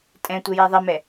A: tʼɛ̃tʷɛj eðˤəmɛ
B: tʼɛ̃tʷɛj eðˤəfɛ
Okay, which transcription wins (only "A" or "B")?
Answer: A